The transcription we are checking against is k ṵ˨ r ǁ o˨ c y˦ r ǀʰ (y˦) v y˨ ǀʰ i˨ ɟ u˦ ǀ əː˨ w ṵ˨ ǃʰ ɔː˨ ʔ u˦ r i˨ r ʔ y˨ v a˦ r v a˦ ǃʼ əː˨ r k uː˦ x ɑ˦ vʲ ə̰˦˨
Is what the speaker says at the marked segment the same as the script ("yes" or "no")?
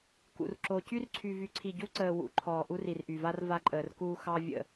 no